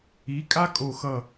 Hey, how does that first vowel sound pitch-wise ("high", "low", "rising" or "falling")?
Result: rising